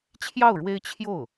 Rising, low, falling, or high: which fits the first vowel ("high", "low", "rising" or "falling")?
falling